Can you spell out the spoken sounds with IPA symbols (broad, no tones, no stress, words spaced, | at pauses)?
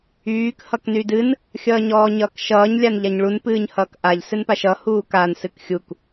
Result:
yːk hʌknydɨn | xʲʌːɲɔːɲʌːkʃʌːɲ lʲanʎaɲɭun pɨːɲhʌːkʔaʎ sɨnpaʃʌ huːkan sɨkxʲuk